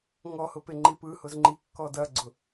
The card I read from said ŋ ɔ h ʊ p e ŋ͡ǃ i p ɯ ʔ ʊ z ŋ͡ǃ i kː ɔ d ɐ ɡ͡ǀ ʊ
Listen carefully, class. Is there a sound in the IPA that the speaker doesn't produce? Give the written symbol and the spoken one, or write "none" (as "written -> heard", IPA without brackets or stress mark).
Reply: ʔ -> h